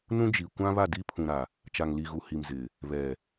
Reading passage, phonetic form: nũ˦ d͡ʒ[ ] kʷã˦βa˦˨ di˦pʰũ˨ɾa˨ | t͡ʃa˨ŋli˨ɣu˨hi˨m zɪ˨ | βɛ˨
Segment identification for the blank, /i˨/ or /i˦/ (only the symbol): i˨